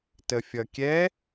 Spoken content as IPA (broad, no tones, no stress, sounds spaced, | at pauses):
t ə fʲ ʌ kʲ ɛ